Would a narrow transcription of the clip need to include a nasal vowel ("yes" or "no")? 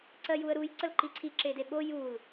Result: no